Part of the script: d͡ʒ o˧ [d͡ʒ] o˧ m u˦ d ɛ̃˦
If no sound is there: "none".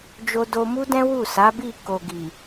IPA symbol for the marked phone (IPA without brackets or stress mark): d